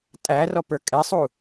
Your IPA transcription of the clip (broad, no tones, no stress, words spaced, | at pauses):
tʼæ rɔpə˞kʼɛsˤu